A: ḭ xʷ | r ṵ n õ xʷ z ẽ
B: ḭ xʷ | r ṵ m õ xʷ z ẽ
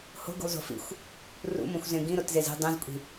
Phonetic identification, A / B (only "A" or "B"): B